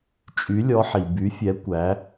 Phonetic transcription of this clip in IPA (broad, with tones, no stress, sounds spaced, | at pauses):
t͡ʃʼ y˨˦ lʲ ɔ˨˦ ħ i˩ b y˨˦ fʲ ɛ˨˦ kʷ æ˨˦